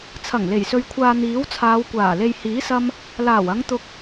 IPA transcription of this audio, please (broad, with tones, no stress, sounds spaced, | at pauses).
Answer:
t͡sʰ ɐ˨˩ ŋ l e˨˩ j s ɵ˨ ɥ kʷʰ aː˨ n̪ iː˨˥ w t͡sʰ aː˨˧ w kʷ aː˨˩ l e˨ j h iː˨˥ s ɐ˧ m | l aː˨˩ w ɐ˨˧ ŋ t̪ ʊ˧ k̚